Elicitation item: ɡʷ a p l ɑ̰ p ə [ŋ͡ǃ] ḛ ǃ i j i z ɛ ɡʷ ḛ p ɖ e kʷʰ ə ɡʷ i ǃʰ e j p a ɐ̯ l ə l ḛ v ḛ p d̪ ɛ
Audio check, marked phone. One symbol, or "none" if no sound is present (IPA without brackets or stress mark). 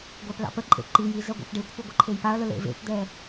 ǃʼ